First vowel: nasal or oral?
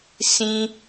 nasal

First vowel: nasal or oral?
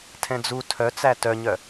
nasal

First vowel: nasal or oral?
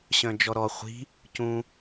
nasal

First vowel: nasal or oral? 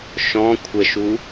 nasal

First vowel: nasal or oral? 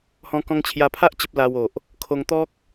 nasal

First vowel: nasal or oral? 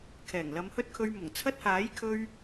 oral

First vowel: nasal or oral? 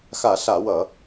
oral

